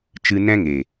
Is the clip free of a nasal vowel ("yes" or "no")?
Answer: no